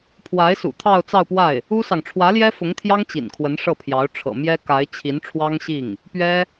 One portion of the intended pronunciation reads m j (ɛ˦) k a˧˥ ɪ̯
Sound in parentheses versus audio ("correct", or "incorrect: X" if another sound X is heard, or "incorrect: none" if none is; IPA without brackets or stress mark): incorrect: ɛ˥